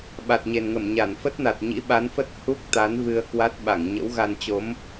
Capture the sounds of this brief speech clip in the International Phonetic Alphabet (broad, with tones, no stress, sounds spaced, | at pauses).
ɓ a˨˩ t̚ ɲ e˨˩ n ŋ ə˧˩ m ɲ a˧˩ n f ə˦˥ t̚ n a˨˩ t̚ ɲ ḭ˧˥ ɓ a˨˦ n f ə˦˥ t̚ h u˦˥ k̚ t̪ a˨˦ n v ɨ˧ ə̯ k w a˦˥ t̚ ɓ a˧˩ ŋ ɲ ə̰˧˥ w ɣ a˧ n t͡ɕ o˨˦ m